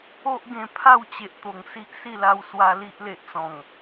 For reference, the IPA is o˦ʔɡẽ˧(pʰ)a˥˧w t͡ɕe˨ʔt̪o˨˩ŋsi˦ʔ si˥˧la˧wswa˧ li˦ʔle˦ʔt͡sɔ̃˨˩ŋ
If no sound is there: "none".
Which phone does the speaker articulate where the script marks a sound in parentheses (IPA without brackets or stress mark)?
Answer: pʰ